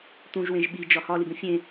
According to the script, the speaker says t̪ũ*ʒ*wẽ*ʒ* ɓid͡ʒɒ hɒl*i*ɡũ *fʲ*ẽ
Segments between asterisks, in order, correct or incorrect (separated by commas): correct, correct, correct, correct